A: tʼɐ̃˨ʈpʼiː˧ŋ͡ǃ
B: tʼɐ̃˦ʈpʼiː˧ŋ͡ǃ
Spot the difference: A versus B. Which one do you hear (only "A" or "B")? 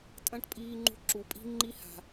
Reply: B